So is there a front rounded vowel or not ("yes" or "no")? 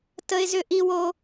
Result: yes